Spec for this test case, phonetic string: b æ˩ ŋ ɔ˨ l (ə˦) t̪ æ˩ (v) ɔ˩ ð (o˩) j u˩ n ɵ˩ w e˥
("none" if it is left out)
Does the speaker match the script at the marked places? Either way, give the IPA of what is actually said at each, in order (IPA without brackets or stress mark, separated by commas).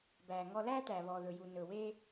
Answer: æ˦, β, ɵ˩